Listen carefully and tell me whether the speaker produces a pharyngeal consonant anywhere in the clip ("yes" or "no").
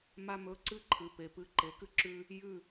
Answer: no